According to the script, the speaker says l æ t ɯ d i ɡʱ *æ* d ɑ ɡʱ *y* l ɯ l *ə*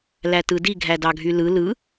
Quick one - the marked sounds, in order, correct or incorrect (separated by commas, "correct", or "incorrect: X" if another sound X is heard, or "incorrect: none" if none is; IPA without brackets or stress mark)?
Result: correct, correct, incorrect: ɯ